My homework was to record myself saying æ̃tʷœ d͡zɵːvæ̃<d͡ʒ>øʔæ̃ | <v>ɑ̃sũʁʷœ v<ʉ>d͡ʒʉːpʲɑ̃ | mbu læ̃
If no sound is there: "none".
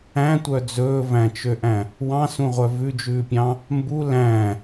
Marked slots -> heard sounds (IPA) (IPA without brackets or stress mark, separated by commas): t͡ʃ, w, ʉ